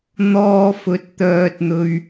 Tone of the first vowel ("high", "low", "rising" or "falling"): low